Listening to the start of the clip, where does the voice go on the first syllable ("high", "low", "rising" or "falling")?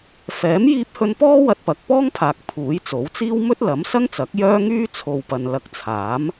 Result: rising